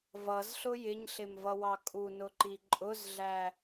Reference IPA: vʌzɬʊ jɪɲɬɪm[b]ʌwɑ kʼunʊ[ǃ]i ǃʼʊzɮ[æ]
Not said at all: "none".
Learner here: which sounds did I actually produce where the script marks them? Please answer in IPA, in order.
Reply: v, ǃ, æ

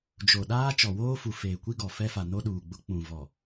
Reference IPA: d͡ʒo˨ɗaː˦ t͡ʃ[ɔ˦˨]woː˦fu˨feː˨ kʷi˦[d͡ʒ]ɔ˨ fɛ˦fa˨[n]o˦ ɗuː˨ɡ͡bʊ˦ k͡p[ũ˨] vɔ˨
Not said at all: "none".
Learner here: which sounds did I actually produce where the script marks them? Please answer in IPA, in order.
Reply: ɔ˨, ɡ, n, ũ˨

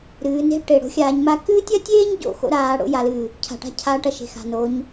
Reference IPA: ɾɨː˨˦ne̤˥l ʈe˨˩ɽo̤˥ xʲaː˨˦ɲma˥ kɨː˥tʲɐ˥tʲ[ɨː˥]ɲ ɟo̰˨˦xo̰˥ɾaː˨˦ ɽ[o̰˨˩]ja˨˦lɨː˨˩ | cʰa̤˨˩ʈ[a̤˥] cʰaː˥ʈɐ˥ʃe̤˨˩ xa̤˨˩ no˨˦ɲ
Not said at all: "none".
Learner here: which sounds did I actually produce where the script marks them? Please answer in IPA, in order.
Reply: eː˥, o̰˥, a̤˥

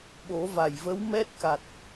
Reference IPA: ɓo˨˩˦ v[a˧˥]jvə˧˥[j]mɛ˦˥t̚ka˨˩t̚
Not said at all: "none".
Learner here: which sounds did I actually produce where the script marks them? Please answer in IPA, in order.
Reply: a˨˩, w

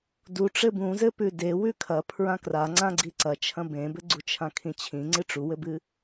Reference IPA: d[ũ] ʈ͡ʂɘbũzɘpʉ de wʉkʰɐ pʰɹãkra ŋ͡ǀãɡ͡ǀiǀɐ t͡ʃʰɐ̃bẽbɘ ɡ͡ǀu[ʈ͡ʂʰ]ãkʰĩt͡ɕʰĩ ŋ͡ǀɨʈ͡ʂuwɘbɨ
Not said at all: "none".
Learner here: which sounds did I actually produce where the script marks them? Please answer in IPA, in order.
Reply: u, t͡ʃʰ

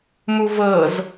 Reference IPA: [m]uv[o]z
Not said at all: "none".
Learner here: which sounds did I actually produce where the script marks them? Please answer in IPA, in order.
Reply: m, ɤ

